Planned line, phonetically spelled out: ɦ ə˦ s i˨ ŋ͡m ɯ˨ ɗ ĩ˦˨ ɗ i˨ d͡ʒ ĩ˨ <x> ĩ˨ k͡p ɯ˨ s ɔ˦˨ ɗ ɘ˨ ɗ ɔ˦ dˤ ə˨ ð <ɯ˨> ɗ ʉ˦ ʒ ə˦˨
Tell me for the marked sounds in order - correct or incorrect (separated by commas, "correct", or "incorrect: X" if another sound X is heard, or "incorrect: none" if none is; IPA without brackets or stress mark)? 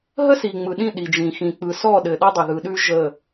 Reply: correct, correct